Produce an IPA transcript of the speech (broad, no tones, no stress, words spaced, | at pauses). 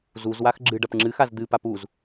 zuzwax ɡ͡ǁɨɖɐp ŋ͡ǁɨxaz d̪ɨpap uz